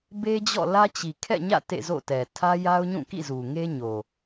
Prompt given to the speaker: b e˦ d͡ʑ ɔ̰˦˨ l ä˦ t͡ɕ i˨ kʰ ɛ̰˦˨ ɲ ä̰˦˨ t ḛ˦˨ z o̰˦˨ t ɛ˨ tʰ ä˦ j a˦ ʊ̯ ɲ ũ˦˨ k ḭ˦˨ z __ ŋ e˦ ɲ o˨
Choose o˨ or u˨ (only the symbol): u˨